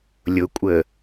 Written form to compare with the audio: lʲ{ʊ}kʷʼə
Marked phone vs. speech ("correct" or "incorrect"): correct